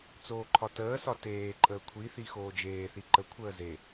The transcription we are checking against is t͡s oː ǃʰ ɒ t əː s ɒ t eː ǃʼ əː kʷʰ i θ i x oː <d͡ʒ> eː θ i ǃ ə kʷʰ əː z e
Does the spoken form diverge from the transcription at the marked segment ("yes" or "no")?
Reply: no